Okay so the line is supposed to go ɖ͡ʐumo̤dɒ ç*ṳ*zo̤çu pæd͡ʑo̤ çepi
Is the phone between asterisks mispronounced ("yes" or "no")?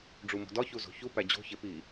yes